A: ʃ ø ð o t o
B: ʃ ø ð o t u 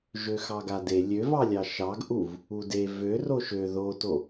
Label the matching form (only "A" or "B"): A